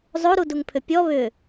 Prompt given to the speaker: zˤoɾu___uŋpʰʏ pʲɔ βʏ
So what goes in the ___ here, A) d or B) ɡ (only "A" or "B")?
A